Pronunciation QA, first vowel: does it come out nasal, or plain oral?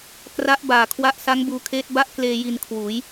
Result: oral